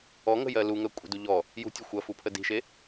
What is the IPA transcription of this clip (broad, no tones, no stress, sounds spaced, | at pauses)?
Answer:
ɔ ŋ ə̤ j ɜ l u ŋ ɜ kʷʼ ə̤ d u ʎ ɔ | j ṳ tʲ ə xʷ ɐ f u pʰ ə d i̤ ʃ e